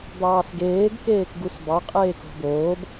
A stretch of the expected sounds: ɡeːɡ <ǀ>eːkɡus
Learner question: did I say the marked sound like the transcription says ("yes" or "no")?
no